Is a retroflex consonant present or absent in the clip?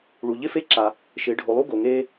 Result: present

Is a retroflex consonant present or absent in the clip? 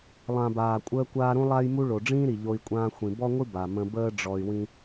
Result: present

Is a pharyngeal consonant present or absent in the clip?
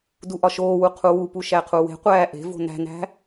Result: absent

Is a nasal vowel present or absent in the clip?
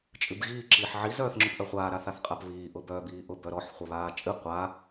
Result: absent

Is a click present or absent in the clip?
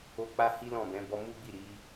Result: absent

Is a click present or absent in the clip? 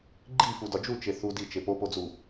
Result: present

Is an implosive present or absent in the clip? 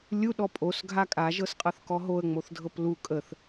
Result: present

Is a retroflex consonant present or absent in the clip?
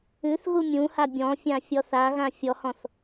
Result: absent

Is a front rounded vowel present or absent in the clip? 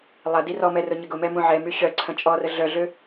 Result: present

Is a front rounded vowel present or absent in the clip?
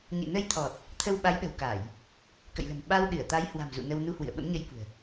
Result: absent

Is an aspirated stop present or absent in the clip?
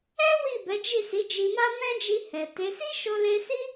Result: absent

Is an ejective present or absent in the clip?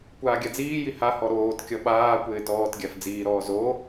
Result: absent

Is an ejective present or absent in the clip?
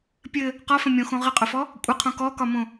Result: present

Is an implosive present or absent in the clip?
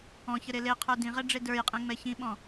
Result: present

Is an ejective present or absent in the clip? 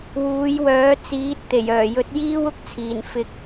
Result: absent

